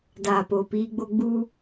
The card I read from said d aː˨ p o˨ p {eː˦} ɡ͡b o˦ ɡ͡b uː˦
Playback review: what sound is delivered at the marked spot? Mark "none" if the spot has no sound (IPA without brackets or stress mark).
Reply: iː˦